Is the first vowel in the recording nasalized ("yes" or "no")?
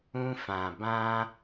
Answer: yes